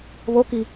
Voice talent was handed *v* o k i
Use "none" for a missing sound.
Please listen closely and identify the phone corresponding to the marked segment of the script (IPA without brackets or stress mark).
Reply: β